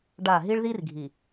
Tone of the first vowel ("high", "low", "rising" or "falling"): falling